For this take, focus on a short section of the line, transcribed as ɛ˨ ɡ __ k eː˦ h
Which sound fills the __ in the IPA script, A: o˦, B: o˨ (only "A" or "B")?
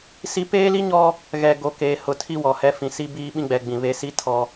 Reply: A